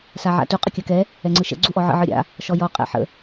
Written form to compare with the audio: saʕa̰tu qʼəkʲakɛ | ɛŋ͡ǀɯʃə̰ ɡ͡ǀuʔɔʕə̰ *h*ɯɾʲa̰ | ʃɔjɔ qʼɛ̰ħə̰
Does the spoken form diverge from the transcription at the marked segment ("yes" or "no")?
yes